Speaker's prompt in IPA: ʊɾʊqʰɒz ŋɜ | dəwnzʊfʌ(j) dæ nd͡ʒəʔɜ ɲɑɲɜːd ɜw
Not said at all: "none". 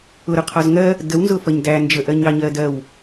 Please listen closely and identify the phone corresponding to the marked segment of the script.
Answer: ɲ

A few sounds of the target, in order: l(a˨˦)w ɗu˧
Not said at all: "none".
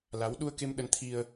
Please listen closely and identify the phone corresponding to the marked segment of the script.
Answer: a˨˦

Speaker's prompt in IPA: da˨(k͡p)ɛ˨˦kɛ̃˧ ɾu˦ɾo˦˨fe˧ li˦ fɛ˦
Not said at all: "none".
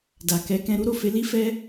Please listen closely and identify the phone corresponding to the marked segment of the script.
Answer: k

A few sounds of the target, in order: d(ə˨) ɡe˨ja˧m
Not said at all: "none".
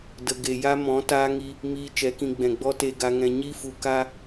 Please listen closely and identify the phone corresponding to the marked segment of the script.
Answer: ə˨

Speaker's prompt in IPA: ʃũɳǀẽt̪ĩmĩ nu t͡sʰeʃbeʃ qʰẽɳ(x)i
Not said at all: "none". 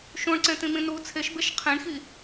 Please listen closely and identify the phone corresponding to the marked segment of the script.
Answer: x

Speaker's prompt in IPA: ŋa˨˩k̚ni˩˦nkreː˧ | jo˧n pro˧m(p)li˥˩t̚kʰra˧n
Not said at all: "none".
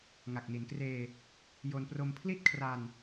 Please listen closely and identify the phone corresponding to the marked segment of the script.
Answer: pʰ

